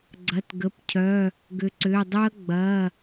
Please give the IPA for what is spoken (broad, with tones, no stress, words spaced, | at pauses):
ɡ͡ǀɐ˩˧˩tɡə˩˧˩pcʰœ˩˧˩ | ɡʏ˩˧ǀʏː˩˧˩dˤø˦˥ɐ̯ ɡ͡bɐ˩˧˩